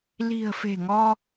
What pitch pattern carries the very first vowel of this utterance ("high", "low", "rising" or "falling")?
low